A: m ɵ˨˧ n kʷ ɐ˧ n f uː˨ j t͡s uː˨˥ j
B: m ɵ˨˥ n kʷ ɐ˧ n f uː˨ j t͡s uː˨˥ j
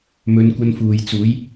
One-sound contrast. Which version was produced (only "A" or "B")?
A